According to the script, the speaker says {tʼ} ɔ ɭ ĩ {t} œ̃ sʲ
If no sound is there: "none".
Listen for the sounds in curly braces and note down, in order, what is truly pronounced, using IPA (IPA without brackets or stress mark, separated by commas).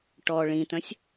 ʈ, t